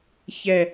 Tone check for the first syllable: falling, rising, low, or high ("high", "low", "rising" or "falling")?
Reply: falling